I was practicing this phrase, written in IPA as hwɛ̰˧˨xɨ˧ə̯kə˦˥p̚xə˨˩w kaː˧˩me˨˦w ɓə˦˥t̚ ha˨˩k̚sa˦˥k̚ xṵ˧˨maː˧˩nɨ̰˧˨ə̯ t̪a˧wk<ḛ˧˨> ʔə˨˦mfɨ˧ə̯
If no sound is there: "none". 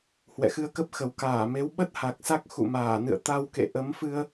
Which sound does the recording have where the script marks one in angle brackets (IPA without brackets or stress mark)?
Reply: ḛ˧˨